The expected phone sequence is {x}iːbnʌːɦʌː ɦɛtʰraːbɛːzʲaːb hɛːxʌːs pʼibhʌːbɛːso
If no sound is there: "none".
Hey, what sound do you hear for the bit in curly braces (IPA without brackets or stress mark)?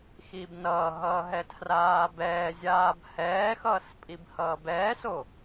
x